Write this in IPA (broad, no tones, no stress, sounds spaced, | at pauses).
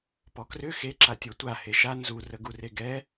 p ɔ k r ʏ x e ǁ a tʲ ɔ tʷ a h e ʃ a n z u r ə ɡ u r e ɡ ɛ